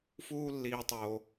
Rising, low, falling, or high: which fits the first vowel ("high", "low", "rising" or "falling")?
high